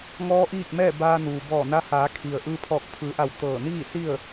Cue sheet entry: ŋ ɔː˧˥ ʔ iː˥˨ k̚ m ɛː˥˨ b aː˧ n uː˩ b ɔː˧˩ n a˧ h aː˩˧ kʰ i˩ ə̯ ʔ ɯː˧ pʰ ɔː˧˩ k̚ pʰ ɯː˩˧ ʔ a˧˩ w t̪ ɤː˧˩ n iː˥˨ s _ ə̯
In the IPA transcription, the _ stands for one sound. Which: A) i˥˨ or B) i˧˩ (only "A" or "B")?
A